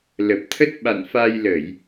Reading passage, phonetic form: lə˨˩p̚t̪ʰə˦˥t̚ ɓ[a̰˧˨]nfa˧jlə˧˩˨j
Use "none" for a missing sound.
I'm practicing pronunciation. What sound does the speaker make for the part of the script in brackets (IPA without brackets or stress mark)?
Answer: a̰˧˨